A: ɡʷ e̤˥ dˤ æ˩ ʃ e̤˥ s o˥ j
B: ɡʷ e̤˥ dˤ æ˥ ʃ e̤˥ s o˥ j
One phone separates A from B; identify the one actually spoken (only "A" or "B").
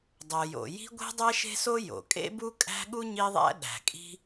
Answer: B